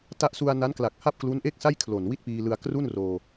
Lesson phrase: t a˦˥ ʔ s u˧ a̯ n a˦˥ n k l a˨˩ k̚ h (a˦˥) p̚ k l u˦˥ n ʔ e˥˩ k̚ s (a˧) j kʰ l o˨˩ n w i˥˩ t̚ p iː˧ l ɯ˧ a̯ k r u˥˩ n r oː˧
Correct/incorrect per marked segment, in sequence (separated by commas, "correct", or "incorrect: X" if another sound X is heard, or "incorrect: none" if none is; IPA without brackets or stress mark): incorrect: a˥˩, incorrect: a˥˩